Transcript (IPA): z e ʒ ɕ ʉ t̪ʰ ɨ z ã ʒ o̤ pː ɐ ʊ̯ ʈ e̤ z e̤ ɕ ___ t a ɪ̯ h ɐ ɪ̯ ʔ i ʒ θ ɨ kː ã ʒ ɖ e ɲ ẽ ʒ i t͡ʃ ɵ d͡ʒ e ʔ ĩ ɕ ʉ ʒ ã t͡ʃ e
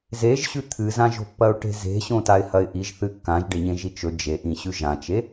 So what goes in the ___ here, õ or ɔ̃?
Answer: õ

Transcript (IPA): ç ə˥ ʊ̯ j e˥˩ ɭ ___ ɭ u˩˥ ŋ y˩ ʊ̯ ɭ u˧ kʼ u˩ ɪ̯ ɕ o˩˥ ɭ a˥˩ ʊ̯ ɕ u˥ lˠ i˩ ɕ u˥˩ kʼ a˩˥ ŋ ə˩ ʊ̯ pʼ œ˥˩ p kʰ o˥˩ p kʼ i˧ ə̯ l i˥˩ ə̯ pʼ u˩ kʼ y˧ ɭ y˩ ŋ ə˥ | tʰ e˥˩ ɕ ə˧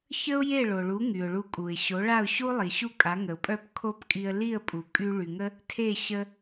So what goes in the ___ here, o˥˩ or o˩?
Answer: o˩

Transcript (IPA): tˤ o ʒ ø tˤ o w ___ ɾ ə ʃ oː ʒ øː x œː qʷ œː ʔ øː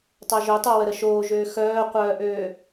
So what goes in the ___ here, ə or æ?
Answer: ə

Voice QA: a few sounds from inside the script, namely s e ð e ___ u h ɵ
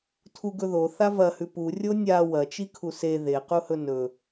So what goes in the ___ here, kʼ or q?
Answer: q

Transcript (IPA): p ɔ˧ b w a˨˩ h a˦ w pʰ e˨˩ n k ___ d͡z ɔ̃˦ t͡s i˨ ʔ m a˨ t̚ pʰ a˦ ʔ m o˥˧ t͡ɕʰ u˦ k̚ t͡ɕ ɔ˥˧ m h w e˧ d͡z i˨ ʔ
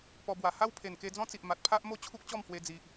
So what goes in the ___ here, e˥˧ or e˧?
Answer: e˧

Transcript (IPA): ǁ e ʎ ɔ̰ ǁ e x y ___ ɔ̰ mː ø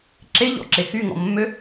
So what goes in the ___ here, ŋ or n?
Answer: ŋ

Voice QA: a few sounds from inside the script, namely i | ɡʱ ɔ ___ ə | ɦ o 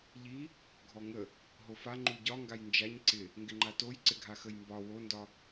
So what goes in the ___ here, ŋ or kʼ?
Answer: ŋ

